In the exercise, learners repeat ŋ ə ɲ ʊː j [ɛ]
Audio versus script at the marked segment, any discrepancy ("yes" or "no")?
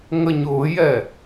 no